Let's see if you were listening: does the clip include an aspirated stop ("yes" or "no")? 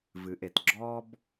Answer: no